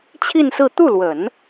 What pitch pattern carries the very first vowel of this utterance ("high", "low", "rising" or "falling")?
falling